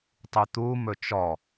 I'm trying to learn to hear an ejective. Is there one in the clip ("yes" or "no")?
no